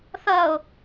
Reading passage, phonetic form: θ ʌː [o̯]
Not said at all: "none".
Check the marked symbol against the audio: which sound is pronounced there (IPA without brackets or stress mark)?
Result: o̯